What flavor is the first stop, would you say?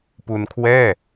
plain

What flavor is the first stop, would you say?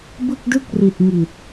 plain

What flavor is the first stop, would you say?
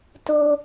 plain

